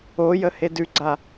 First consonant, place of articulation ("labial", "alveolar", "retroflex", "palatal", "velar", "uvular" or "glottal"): palatal